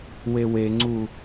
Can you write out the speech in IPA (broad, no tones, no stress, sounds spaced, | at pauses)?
w e w e ŋ͡ǀ u